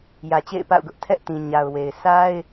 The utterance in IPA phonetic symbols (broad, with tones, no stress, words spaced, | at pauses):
jä˨t͡ɕḛ˦˨ɪ̯pa̰˦˨ʊ̯ɡʊ˦ʔ tʰɛ˦ʔtĩ˨ ɲa˨ʊ̯ we˨ɪ̯ sa˦ɪ̯